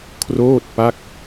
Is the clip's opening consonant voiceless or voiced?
voiceless